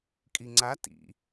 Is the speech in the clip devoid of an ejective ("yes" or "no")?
no